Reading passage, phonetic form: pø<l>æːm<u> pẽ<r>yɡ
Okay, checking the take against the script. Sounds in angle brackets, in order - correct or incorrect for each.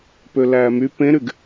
correct, incorrect: y, incorrect: ɾ

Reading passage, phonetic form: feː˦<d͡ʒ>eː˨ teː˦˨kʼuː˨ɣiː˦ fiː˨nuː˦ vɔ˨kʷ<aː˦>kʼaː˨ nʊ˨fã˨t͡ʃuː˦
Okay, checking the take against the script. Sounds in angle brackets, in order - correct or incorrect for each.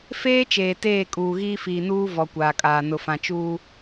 incorrect: t͡ʃ, incorrect: aː˨

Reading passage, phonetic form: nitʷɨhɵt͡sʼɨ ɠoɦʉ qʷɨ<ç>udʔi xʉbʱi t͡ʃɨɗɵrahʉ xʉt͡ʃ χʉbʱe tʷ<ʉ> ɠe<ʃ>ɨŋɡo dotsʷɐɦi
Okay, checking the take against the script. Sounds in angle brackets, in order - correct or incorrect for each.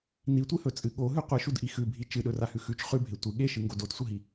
incorrect: ʃ, incorrect: ɨ, correct

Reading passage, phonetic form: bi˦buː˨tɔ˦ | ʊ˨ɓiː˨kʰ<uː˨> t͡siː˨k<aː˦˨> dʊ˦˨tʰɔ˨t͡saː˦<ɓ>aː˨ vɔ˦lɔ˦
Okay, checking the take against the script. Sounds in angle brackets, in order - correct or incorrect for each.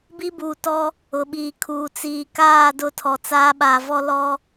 correct, correct, correct

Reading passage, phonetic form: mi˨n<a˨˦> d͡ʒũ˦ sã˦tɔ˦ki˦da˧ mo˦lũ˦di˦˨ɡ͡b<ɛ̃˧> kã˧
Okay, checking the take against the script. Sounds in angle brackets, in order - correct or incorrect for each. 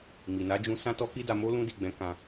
correct, incorrect: ɛ̃˨˦

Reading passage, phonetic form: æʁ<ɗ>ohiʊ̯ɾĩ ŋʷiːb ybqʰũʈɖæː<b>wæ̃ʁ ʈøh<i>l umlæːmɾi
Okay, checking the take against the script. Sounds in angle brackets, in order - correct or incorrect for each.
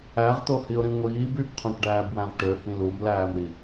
incorrect: t̪, correct, incorrect: ĩ

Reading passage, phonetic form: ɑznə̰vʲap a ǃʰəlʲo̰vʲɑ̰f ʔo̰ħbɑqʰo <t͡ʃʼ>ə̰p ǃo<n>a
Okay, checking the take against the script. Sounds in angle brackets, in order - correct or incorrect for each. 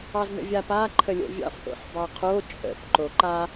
correct, incorrect: ǃ

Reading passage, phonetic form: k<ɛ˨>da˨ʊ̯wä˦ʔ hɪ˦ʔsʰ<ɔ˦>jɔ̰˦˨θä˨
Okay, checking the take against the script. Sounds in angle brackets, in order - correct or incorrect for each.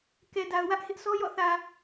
correct, correct

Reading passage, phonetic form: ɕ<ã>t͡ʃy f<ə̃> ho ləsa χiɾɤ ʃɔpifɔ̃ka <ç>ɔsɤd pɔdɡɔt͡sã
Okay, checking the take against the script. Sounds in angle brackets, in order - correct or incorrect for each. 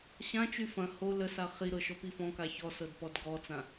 correct, incorrect: ɐ̃, correct

